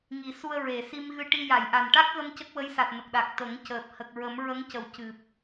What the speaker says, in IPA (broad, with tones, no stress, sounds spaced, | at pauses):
ŋ i˨˩˦ s u˧ ə̯ ɹ e˨˩˨ s i˧ m ɣ ɨ˧ ʈ i˧ j a˨˩˨ j ʔ a˨˩ n ʈ a˦˥ k̚ ɣ ə˧ m c ə˦˥ k̚ w ə˧˥ j s a˨˩ t̚ n ə˨˩ k̚ ɗ a˨˩ k̚ t̪ ə˨˩˦ ŋ c əː˨˩ p̚ h ə˨˩ k̚ ɹ ə˨˩˦ m ɹ ə˧˥ ŋ c ə˨˩˨ w c ɨ˨˩ p̚